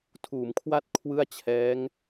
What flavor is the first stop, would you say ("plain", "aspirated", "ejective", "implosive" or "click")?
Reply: aspirated